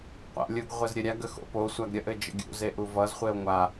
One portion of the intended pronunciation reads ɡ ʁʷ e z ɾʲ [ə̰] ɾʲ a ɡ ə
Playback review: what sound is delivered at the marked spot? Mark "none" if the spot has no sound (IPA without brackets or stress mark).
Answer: ə